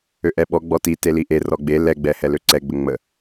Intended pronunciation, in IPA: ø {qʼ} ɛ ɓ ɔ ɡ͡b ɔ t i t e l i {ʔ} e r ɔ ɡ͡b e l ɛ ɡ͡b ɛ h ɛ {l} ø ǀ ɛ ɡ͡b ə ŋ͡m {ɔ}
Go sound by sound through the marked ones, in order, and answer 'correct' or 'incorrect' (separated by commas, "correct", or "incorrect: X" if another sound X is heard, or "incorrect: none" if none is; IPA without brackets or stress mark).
incorrect: ʔ, correct, correct, incorrect: ə